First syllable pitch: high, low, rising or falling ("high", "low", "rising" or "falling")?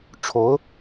rising